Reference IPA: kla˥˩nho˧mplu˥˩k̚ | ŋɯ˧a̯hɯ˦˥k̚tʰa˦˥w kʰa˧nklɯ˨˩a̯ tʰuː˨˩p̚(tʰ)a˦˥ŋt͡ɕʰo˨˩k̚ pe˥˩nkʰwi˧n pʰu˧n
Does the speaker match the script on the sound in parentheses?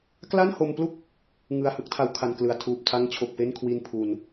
yes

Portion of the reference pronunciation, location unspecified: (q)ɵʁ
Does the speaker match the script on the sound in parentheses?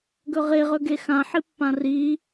no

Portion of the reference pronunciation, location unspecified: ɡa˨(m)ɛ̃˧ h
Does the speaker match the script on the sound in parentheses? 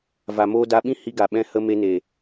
no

